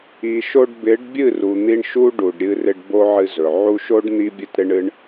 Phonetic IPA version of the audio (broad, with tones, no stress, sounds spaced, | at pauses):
i˨ ʃ o˧ ɖ b ɪ˨˦ ɖ bʲ ɨ˦˨ r u˨ n̪ i˧ ɳ ʃ u˦ ɖ u˨ ɖ ɾʲ ɨ˧ r ɪ˧ ɖ b o˦ ʕ ɨ˧ z ɵ˨ ʕ u˧ ʃ o˦ ɖ n̪ i˦ bʲ ɨ˦ t ɾ ɪ˦ ɳ ɨ˦ ɳ